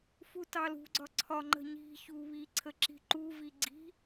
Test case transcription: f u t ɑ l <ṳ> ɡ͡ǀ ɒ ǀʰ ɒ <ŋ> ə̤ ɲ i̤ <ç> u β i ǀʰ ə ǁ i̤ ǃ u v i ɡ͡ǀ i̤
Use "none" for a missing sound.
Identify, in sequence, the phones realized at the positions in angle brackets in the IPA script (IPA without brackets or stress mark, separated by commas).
ṳ, ŋ͡ǃ, ç